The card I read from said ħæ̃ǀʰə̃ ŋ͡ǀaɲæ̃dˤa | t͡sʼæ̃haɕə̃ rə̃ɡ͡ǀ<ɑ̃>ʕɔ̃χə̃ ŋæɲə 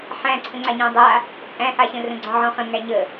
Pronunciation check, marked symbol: incorrect: ɔ̃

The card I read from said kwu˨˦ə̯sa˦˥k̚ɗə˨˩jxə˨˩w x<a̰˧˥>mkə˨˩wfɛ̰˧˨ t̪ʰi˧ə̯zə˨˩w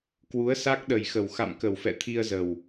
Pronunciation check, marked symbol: incorrect: a̰˧˨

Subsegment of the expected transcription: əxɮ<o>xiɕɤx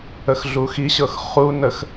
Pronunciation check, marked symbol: incorrect: u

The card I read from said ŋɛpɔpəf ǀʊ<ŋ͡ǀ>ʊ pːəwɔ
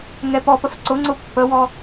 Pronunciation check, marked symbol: correct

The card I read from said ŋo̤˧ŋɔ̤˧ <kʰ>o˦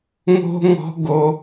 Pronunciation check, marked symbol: incorrect: ɡ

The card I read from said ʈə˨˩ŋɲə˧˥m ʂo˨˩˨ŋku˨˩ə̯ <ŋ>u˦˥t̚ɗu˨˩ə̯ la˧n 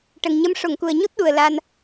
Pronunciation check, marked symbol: incorrect: ɲ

